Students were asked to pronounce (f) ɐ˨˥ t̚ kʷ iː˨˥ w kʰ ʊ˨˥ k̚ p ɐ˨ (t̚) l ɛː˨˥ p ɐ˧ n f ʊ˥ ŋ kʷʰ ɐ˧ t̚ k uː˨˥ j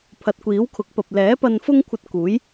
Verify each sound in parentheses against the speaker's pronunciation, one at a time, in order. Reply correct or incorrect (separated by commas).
incorrect, incorrect